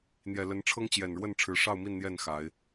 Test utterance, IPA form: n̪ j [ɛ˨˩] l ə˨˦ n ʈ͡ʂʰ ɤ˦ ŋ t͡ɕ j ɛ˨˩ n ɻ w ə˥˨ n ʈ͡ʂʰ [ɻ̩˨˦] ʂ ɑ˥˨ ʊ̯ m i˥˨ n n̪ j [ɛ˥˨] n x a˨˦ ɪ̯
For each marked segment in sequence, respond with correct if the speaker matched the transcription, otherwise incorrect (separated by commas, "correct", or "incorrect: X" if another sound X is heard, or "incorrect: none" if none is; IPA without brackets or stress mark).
correct, correct, correct